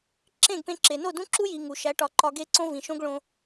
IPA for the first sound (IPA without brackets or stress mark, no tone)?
ǁ